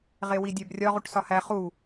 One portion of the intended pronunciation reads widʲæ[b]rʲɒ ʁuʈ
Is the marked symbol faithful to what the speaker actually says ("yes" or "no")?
yes